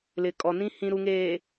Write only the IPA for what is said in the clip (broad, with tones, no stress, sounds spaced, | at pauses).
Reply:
l ɪ˨ kʼ ɔ˨ n ĩ˦ h ĩ˨ ɾ u˨ ŋ eː˨